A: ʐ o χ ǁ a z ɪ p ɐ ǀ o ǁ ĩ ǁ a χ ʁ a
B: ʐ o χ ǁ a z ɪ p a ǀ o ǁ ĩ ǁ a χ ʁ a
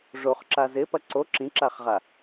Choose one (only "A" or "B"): A